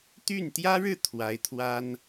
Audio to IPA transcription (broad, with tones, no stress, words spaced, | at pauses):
t̪y˥˩n t̪jä˥ɻɻ̩˥˩ t̪ʰwa˧˥ɪ̯t̪ʰwa˥n